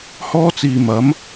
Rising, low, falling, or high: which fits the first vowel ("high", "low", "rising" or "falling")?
high